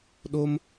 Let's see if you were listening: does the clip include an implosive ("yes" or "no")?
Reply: yes